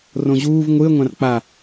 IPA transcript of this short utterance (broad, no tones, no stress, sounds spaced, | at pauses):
r õ ʑ uː v ŋʷ ɨ ə̯ ŋʷ ã r k͡p a